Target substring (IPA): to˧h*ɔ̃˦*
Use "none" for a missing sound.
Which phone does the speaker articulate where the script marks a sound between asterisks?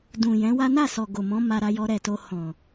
ɔ̃˨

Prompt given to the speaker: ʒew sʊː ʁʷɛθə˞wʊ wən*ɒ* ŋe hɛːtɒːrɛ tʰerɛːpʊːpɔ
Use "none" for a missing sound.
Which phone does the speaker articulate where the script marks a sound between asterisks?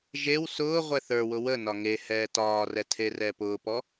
ɒ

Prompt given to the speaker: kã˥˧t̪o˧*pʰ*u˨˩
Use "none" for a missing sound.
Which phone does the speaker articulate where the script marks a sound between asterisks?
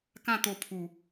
pʰ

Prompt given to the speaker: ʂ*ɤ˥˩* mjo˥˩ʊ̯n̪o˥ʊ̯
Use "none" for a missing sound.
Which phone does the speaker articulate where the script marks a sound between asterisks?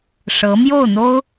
ɤ˧˥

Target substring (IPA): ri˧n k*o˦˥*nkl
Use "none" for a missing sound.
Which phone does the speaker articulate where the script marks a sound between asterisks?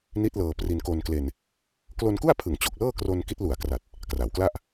o˧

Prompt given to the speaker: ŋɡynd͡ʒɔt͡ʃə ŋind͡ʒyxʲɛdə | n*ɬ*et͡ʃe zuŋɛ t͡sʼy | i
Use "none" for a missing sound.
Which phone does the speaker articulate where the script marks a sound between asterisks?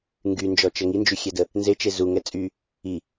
z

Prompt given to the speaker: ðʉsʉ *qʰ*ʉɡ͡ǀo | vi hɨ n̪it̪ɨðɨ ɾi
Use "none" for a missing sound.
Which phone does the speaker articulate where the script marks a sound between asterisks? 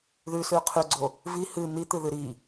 qʰ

